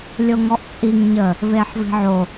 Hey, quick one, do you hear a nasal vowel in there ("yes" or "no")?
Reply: no